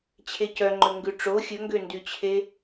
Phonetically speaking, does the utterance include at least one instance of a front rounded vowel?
yes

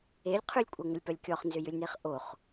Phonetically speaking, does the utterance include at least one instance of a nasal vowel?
no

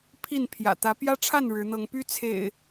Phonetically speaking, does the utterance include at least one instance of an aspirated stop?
yes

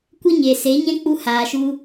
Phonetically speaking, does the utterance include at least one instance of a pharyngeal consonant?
no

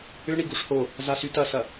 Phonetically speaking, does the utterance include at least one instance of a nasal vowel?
no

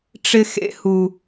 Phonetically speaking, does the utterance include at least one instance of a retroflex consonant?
yes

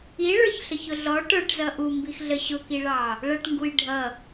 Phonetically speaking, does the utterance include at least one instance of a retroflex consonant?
yes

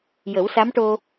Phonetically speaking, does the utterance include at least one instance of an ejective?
no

